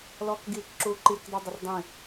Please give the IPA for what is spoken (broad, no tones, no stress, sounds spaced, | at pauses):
l ɔ k ɡ i k ǁ u ǃ i k dˤ o dˤ ə r dˤ ĩ